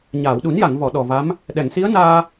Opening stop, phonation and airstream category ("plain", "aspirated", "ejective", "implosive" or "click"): implosive